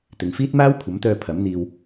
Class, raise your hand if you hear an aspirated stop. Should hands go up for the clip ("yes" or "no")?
yes